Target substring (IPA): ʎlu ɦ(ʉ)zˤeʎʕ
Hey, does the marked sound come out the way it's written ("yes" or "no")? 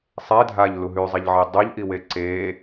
yes